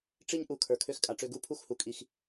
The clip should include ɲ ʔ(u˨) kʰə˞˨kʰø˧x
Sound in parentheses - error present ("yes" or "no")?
no